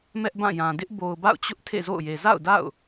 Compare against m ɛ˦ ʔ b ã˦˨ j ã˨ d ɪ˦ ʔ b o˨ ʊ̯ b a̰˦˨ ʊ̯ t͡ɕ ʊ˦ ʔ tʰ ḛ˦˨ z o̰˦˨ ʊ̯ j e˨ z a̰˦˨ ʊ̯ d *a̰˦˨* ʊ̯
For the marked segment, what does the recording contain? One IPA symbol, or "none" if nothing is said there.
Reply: a̰˦˨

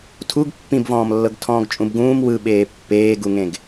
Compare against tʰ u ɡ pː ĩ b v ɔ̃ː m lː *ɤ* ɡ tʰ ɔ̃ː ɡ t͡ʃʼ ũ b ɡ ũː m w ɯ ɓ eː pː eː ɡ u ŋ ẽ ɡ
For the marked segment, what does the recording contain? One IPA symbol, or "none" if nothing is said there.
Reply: ɤ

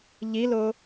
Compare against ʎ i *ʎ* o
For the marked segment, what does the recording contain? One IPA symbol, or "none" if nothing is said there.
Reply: l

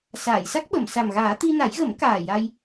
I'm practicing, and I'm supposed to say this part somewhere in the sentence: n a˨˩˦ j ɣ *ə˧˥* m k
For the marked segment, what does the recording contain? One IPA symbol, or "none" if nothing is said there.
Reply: ə˨˩˦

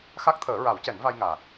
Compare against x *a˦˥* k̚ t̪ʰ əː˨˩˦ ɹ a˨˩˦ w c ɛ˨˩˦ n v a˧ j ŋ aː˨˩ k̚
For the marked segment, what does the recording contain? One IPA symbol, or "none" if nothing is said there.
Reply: a˦˥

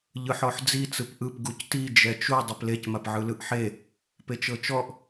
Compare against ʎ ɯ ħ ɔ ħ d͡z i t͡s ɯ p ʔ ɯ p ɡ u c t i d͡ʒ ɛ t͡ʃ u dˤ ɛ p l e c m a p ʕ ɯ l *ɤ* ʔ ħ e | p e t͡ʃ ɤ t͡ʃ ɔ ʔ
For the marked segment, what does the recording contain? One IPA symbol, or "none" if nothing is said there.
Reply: ɯ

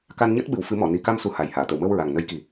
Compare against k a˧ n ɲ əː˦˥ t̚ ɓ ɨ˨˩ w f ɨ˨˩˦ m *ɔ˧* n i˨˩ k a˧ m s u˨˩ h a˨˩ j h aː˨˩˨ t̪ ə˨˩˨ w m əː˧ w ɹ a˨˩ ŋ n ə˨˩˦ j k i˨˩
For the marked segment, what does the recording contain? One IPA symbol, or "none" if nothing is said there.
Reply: ɔ˨˩˨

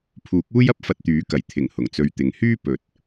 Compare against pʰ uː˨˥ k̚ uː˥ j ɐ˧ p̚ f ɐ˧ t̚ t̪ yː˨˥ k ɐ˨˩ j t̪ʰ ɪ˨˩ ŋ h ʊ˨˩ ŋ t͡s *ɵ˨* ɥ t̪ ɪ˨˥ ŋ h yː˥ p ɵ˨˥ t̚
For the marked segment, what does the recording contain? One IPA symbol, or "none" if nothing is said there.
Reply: ɵ˧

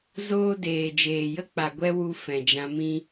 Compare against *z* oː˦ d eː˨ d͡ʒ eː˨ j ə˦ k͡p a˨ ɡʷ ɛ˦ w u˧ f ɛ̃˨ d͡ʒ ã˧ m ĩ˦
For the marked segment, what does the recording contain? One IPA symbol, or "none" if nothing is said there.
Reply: z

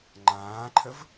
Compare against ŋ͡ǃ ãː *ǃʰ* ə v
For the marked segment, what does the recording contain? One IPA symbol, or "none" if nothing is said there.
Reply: ǃʰ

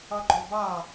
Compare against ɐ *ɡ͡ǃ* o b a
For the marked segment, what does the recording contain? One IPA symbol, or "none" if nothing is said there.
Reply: ɡ͡ǃ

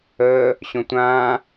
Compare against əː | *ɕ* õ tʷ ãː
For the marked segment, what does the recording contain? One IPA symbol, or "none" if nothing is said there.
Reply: ɕ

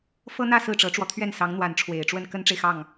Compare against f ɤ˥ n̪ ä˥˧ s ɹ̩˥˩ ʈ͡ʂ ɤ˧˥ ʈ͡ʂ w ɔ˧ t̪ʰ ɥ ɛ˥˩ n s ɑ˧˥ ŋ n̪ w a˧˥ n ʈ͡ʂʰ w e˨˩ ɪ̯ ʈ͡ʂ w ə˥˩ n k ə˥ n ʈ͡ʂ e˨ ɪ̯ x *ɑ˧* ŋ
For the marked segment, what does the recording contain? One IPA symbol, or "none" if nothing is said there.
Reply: ɑ˥˩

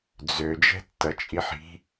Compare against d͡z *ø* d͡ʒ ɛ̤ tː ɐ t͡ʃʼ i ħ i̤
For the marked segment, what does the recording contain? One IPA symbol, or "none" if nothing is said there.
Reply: ø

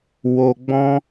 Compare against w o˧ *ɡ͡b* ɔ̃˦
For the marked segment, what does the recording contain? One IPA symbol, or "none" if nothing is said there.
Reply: ɡ͡b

